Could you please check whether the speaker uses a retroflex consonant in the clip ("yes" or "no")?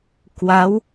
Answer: no